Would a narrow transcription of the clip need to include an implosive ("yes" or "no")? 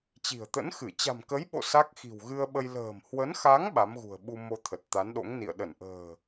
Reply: yes